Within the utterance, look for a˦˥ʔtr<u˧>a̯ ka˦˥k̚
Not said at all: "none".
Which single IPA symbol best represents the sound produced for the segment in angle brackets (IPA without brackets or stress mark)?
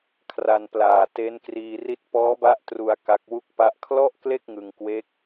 u˧